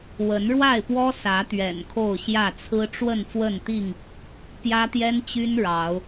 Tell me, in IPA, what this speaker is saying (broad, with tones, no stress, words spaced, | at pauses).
wə˨˦nɻwa˥˨ɪ̯pwɔ˦ sä˨˦t̪ɥɛ̰˨˩n kʰo˥˨ʊ̯ɕjä˥˨ t͡sʰɹ̩˦ʈ͡ʂwə˥˨nfwə˥˨nt̪i˥˨ŋ | pjä˦t̪jɛ˦nt͡ɕy˦n ɻɑ˨˦ʊ̯